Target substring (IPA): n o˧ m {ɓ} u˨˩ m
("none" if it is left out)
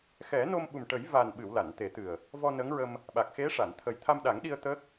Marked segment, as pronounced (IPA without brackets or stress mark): ɓ